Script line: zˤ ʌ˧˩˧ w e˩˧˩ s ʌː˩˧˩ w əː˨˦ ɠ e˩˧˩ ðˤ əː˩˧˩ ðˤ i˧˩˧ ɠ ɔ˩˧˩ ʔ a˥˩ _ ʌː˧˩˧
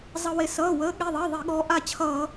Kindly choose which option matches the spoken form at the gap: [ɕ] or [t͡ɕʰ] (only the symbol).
t͡ɕʰ